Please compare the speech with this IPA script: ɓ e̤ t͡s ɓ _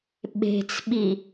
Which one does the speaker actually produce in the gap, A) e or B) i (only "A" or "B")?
B